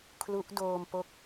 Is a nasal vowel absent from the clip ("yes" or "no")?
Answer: yes